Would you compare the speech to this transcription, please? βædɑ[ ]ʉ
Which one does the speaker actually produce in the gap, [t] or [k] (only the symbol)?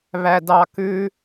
k